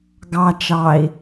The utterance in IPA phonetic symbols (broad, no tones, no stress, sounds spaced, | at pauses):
ɡ ɑ t͡ʃ ɑ i̯